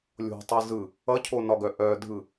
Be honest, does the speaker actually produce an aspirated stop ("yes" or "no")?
yes